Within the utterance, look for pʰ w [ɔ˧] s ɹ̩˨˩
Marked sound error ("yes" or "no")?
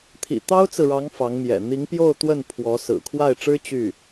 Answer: yes